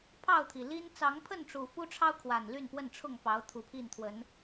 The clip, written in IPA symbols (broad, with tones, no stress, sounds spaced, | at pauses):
pʰ ɑ˥˨ ʊ̯ t̪ʰ i˩ l i˦ n t͡s ɑ˨˦ ŋ pʰ ə˥˨ n ʈ͡ʂ u˨˩ f u˦ ʈ͡ʂʰ ɑ˦ ʊ̯ kʰ w a˨˩ n l y˥˨ n p w ə˥˨ n ʈ͡ʂʰ ʊ˥˨ ŋ p ɑ˨˦ ʊ̯ t̪ʰ u˨˩ pʰ i˥˨ n t̪ʰ w ə˨˦ n